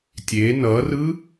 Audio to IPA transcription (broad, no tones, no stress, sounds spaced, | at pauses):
tʲ e n ʌ r ɯ